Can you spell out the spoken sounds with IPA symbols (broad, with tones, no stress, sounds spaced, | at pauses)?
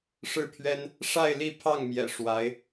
ʂ ɻ̩˥˩ pʰ ɥ ɛ˥ n | ʂ a˥˧ ɪ̯ l i˥˧ pʰ ɑ˥˩ ŋ m j ɛ̰˨˩ ʂ w a˧˥ ɪ̯